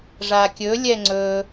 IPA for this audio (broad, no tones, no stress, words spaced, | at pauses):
ʐakʲɵ lʲɛŋ͡ǀɵ